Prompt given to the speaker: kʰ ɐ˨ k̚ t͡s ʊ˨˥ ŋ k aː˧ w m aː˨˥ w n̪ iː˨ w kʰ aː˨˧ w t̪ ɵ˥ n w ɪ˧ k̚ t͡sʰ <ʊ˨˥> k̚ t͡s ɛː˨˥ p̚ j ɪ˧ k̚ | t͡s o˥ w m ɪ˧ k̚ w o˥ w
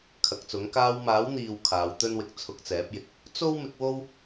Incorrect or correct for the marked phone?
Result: incorrect: ʊ˧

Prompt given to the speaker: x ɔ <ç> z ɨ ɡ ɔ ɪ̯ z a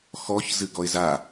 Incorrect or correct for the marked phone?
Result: correct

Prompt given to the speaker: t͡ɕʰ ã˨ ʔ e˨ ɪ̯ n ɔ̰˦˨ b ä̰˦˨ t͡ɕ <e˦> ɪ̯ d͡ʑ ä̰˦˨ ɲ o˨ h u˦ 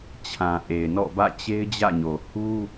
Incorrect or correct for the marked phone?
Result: correct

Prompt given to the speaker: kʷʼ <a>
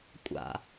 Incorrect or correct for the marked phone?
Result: incorrect: a̰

